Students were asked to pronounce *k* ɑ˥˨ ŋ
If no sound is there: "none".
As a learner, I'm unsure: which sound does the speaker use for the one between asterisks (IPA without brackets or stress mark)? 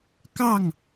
k